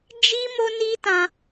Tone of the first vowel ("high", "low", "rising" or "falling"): high